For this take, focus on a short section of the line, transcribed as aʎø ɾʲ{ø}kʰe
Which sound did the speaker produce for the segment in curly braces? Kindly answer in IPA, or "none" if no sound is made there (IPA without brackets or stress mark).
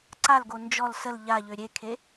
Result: e